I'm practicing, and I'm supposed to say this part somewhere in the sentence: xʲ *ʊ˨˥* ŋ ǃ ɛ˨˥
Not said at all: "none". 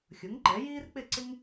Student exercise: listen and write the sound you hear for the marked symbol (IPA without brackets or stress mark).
ʊ˨˥